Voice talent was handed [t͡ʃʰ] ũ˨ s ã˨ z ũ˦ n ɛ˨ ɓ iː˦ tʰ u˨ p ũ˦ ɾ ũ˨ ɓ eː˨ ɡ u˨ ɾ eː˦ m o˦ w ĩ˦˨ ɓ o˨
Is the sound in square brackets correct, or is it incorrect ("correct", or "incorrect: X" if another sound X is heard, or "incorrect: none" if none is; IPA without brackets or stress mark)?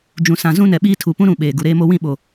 incorrect: d͡ʒ